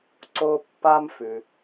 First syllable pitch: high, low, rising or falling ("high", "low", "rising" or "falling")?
high